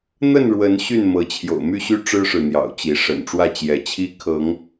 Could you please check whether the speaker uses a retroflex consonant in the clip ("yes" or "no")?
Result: yes